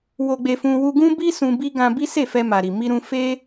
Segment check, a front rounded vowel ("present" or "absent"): absent